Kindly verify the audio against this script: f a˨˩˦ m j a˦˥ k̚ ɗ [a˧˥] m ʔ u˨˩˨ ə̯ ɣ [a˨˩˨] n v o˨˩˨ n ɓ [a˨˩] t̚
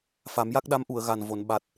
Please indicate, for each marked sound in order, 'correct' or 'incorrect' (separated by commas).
correct, incorrect, correct